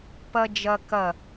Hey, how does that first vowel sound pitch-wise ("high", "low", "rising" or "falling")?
high